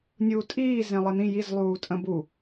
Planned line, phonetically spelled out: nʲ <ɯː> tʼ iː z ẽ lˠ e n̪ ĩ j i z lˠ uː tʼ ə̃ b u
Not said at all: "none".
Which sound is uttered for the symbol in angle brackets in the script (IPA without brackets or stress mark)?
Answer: uː